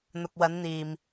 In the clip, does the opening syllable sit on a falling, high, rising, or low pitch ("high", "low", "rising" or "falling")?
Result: low